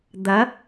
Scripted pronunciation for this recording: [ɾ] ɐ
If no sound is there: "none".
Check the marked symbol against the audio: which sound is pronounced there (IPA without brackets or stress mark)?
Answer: d̪